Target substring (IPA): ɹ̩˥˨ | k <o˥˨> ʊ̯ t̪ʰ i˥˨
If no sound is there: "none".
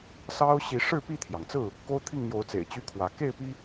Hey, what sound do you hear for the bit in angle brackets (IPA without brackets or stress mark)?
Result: o˦